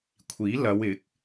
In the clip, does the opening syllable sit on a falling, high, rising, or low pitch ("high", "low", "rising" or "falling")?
rising